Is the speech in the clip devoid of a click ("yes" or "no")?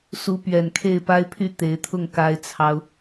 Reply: yes